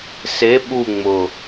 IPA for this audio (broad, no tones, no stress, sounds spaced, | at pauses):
s e ɓ u ŋ͡m ʊ